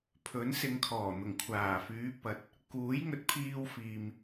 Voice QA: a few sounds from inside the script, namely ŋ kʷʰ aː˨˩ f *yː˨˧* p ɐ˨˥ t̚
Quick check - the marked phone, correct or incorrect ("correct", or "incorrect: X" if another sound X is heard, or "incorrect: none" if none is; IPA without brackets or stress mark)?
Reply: correct